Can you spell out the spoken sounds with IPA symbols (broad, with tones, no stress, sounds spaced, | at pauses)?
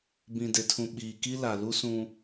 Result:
b ĩ˨ d e˨ tʰ ũ˨ ɓ iː˨ k i˦ l a˨ l u˦ s ũ˦